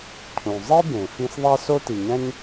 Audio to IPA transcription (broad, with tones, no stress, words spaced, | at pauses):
cʰũ˩ zˤi˥bẽ˩ fĩ˧s ðˤæ˥so˥ti˩ɲæ̃˥ɲ